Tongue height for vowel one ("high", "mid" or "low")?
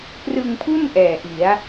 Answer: high